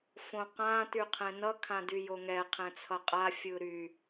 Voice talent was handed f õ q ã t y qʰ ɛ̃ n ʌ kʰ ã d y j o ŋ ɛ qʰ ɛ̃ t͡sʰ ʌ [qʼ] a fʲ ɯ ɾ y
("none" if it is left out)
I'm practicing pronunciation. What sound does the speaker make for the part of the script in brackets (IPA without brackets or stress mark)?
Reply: qʼ